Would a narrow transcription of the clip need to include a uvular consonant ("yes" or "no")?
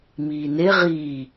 yes